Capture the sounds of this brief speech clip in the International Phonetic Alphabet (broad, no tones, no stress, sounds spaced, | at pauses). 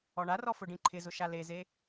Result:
ɔ ɳ a r ɔ f ʊ ɖ ĩ ǃʰ ɪ z ʊ ʃ a l e z e